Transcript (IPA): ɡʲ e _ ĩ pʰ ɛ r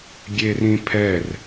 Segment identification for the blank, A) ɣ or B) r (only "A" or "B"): B